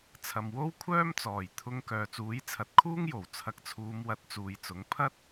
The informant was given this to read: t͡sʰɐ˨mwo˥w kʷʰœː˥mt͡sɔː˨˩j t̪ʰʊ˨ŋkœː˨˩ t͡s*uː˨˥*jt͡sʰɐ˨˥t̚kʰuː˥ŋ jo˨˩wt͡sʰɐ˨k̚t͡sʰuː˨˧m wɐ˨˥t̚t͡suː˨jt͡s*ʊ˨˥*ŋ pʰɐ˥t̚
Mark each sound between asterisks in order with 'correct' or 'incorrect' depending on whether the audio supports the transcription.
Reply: correct, correct

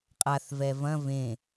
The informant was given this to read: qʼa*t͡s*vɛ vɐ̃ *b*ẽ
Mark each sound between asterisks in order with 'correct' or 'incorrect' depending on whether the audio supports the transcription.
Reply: incorrect: θ, incorrect: v

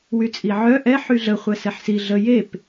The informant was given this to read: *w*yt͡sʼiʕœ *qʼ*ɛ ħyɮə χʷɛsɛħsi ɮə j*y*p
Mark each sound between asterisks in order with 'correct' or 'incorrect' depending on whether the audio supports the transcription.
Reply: correct, incorrect: ʔ, incorrect: e

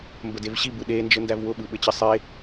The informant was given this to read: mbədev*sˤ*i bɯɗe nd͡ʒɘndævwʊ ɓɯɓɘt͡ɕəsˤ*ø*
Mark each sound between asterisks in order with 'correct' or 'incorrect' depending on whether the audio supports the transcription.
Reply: incorrect: ɕ, incorrect: e

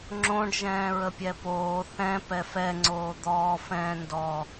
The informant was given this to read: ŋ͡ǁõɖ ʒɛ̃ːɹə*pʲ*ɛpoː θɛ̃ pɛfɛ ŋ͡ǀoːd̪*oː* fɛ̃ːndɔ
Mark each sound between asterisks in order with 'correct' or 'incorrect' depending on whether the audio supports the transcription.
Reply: correct, incorrect: ɔː

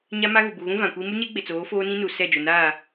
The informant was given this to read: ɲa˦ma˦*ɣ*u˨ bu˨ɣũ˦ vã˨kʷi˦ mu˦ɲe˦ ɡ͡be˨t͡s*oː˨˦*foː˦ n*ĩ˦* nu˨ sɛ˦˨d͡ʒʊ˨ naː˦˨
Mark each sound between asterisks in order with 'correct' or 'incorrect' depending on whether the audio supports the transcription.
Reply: correct, correct, correct

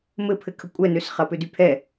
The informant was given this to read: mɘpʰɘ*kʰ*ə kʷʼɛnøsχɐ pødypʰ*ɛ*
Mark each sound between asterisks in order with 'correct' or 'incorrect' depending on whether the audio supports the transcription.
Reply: correct, correct

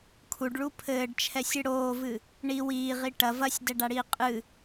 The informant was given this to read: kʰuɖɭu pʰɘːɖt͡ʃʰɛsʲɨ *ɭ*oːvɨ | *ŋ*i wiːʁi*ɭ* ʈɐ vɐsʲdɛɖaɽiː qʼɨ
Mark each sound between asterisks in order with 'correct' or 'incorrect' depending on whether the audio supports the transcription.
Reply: incorrect: ɽ, incorrect: ɳ, incorrect: none

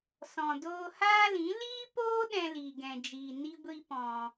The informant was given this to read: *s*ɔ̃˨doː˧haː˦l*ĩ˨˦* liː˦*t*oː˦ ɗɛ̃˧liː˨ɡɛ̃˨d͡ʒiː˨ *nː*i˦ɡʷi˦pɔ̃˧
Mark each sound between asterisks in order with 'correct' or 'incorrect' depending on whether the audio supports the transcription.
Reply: correct, correct, incorrect: p, incorrect: n

